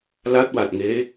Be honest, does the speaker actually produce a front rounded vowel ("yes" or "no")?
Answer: no